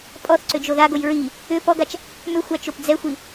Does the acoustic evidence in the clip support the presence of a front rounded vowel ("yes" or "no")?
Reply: yes